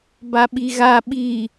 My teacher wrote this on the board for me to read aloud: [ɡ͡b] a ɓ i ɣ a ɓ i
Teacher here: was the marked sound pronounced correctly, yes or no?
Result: no